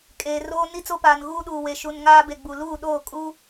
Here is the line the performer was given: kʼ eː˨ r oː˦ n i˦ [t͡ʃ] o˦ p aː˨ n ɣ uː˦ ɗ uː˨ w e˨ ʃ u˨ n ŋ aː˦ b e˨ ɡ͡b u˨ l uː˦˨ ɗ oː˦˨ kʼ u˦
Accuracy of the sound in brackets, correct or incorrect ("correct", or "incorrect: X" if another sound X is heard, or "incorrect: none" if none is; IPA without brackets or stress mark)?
incorrect: t͡s